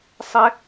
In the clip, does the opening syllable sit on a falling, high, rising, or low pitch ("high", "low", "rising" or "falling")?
high